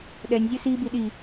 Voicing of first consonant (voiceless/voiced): voiced